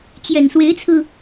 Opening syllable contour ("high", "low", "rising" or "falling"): low